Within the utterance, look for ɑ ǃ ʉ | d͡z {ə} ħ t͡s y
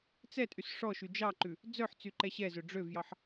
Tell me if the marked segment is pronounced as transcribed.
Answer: no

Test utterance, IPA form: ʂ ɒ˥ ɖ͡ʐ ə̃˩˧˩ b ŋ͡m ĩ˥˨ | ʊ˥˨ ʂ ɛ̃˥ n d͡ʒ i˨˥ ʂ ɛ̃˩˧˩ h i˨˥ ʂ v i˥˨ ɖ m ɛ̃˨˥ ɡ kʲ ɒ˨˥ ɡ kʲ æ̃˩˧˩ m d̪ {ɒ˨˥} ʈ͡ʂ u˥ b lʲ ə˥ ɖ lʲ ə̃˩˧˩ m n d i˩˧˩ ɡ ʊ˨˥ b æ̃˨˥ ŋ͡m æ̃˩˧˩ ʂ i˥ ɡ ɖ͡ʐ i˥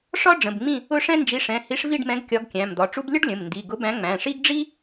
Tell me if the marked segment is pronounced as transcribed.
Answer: no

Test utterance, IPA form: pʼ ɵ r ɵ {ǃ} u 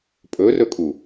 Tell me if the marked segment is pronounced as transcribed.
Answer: no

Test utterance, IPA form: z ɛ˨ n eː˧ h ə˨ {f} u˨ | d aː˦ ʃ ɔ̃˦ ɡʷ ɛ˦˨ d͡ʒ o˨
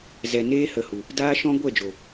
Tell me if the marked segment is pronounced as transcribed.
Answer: no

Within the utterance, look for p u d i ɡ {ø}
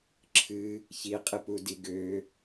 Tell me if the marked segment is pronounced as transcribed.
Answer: yes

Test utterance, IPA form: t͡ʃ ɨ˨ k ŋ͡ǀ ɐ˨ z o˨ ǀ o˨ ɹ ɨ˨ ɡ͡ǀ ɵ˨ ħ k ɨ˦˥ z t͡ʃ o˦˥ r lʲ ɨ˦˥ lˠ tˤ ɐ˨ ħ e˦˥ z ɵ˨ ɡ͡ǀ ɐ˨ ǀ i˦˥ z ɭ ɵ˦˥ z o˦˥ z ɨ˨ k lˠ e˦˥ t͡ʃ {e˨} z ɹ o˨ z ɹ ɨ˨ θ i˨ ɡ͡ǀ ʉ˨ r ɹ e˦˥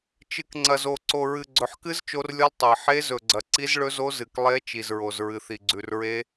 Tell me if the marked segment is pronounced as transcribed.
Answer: no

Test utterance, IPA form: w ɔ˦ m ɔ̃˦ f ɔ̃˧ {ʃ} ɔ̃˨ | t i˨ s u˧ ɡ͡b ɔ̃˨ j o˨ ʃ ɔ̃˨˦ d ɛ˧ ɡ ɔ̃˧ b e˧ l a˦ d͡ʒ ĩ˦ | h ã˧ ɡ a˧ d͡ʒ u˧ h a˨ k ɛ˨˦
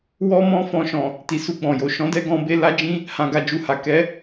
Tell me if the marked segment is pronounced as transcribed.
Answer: yes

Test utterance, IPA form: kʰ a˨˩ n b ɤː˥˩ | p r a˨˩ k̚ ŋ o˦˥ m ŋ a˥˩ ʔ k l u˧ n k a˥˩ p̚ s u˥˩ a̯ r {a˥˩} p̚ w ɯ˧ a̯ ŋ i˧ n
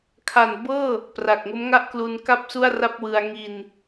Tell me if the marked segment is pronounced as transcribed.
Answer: yes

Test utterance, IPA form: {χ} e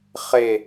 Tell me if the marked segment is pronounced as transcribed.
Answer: yes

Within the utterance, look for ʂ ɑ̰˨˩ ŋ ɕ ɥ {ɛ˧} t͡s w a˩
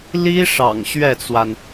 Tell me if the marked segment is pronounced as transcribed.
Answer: no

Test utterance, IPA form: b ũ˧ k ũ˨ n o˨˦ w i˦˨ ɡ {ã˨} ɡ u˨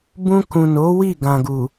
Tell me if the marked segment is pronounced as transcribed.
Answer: yes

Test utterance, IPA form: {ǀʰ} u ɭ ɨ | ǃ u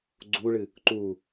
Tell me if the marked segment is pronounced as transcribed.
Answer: no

